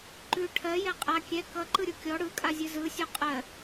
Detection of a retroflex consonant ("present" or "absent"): present